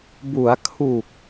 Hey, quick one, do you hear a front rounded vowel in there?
no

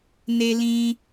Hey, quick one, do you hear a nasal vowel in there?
yes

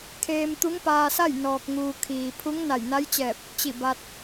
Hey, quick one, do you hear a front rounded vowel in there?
no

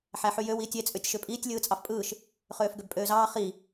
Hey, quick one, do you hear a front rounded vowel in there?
yes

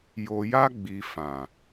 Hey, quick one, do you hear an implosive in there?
no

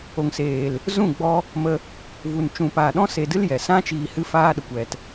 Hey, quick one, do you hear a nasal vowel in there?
yes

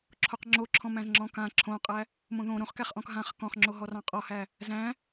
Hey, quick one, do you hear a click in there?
yes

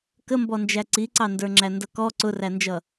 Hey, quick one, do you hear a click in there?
yes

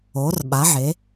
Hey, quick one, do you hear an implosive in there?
yes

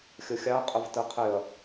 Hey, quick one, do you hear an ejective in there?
yes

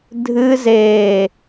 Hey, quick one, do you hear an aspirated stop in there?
no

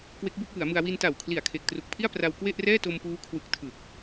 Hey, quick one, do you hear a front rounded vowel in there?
no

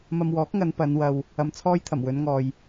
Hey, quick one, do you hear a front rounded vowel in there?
no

